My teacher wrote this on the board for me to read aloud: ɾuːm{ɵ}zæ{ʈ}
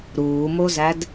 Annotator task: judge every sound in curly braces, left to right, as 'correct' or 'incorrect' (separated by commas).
incorrect, incorrect